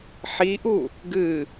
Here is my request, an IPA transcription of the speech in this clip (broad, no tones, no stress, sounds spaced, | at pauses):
ħ i ʔ u | ɡ ɨ